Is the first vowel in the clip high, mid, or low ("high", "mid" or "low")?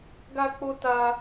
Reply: low